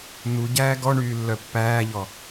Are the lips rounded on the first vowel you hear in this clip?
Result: yes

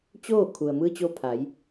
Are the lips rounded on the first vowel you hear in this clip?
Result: yes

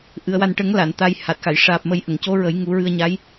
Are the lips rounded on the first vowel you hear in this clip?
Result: no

